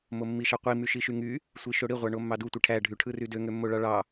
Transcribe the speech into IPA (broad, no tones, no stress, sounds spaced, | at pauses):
m o mː i ʃ ɑ qʷ i m y ʃ i ʃ y ŋ y | sʷ i ʃ o ɽ i ʁʷ ɑ ɳ o mː ɑ d u tʷ i ʈʰ æ ɖʱ y ʈʰ ɯ r y d ø ŋ ø mː o ɭ ɑ ɭ ɑ